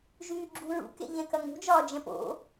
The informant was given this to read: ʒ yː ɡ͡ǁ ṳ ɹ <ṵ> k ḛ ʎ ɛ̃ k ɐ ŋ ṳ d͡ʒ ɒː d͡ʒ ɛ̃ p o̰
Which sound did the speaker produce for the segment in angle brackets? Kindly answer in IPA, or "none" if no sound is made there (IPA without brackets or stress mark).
ṵ